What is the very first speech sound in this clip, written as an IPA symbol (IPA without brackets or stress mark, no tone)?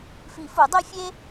f